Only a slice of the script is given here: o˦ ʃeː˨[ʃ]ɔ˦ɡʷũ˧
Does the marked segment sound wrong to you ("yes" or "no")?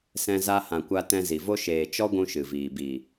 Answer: yes